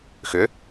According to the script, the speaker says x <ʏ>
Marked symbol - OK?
yes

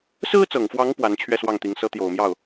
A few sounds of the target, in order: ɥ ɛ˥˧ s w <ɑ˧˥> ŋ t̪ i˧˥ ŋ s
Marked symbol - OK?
no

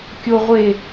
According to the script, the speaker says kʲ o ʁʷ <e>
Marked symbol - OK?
yes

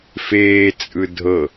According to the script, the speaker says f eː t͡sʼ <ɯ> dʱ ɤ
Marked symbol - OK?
yes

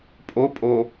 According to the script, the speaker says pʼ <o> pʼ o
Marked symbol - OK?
yes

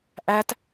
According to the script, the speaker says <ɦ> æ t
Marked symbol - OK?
no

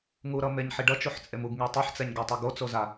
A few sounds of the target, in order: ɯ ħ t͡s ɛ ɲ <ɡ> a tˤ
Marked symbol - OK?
yes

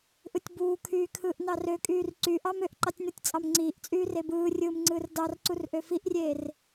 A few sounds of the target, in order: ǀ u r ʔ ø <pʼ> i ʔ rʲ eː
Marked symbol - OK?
no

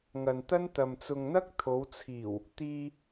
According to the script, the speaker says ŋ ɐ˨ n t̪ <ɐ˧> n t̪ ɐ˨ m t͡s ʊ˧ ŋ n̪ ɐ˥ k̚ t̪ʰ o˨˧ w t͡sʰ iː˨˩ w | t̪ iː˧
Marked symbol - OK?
no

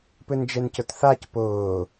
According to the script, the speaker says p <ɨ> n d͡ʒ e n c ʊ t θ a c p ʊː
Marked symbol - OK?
yes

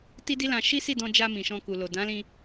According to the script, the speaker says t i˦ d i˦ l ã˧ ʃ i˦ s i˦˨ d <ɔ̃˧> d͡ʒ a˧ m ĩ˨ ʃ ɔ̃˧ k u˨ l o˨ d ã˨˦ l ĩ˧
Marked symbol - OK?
yes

